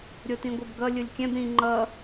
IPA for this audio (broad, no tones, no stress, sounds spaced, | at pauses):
ɾʲ o t ĩ ɡʷ ʌ b ɡ ʌ lʲ ɯ lʲ kʲ ɛ̃ b ɾ ĩ ŋ͡ǃ ʌ